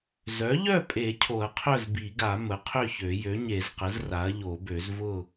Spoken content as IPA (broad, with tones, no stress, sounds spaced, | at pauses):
z œ˩˥ ʎ œ˥˨ pʼ e˨˩˦ cʰ o˨˩˦ ɐ̯ qʰ œ˥˨ z b i˨˩˦ ɡ a˨˩˦ m ə˩˥ qʰ ø˥˨ ç ø˨˩˦ j ø˩˥ ɲ e˨˩˦ z q ə˩˥ z r a˩˥ ɐ̯ ʎ o˨˩˦ b ø˨˩˦ z v ʊ˥˨